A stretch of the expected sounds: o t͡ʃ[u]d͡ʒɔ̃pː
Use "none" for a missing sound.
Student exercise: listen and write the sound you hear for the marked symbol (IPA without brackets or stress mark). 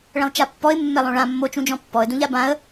ũ